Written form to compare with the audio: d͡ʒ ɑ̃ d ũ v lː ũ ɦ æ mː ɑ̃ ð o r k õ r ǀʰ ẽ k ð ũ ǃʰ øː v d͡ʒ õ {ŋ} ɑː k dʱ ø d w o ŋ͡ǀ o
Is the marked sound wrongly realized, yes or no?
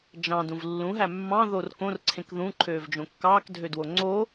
yes